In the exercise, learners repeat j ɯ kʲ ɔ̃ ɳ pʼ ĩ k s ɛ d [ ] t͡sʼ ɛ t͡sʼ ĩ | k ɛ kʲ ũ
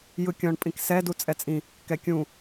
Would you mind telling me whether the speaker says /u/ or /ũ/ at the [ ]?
u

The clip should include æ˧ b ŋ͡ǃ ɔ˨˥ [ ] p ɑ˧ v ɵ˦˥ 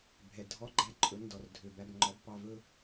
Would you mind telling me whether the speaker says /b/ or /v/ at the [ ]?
b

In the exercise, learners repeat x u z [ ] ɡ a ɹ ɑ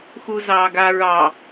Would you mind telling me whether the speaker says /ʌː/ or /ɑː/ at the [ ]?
ɑː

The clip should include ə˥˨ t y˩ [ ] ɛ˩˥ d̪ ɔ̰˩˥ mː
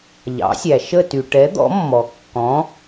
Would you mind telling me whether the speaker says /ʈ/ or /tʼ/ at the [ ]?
ʈ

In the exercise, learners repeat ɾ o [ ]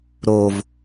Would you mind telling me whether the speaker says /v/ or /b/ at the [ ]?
v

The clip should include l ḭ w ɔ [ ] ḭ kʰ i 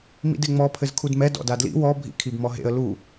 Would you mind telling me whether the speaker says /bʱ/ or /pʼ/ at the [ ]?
bʱ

